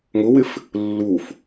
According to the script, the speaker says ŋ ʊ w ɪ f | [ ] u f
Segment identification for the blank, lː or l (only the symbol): lː